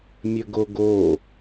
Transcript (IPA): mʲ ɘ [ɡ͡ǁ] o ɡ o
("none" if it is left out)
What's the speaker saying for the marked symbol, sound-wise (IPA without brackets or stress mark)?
ɡ